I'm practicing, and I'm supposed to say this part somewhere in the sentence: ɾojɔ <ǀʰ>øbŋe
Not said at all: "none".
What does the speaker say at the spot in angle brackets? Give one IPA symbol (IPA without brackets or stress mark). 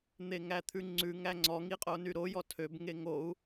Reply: tʰ